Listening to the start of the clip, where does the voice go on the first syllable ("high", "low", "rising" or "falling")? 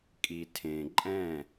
low